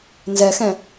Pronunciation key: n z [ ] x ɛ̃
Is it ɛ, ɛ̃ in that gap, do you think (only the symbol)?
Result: ɛ